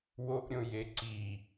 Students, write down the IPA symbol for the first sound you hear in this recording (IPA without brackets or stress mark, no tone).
w